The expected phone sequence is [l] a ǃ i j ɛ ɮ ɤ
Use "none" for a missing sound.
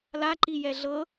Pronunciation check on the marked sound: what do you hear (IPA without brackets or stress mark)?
l